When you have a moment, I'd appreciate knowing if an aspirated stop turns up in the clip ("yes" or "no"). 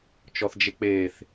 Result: no